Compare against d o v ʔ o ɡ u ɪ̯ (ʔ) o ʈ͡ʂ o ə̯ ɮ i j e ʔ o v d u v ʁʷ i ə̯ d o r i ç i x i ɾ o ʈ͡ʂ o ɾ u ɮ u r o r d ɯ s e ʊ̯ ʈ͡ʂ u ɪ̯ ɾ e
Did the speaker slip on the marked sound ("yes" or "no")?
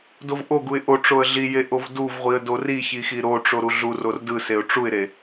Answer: no